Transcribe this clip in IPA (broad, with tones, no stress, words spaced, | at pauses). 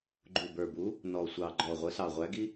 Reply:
ɡ͡ǃu˨˩bə˞˨˩bu˨˥ | nɔ˨˩sʷɑ˨˩ ɡ͡ǃɔ˨˩ʁʷə˨˥sɑ˨˩ ʁʷæ˨˥ɡi˥